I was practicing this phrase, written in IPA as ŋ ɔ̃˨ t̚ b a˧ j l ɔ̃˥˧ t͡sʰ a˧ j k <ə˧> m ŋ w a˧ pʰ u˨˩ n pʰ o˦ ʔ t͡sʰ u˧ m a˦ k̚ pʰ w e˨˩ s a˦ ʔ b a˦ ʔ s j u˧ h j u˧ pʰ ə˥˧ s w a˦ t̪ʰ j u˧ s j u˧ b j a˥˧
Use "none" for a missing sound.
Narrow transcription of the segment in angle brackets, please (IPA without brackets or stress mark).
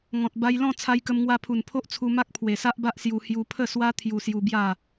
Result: ə˧